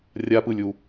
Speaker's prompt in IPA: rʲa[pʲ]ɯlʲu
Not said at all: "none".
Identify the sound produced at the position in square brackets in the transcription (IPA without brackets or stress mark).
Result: p